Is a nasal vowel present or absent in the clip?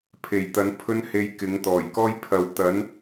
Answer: absent